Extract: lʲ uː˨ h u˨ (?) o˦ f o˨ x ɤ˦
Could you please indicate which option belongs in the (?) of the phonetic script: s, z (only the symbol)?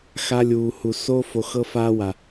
s